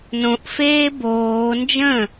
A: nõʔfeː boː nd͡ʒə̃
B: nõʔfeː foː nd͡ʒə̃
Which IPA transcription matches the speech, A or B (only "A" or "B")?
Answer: A